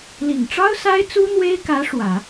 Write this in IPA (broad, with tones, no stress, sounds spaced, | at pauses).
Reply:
l i˨˩ ŋ ʈ͡ʂ ɑ˥ ʊ̯ s a˥ ɪ̯ t͡s u˥ n̪ w e˥ ɪ̯ k ä˧˥ ʂ w ä˨˩˦